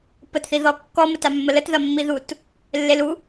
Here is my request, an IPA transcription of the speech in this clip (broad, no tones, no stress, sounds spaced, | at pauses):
p ə t θ i ð ɔ kː ɔ m ə t a mː ə l ə t ð ɐ mː i ð u t | lː e l u